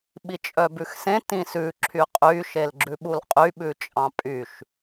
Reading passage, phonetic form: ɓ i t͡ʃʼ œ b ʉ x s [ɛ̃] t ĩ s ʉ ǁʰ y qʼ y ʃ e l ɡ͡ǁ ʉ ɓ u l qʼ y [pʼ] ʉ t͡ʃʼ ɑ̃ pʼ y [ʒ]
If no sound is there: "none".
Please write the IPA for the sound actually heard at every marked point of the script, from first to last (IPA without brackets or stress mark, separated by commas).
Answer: ẽ, ɓ, ʃ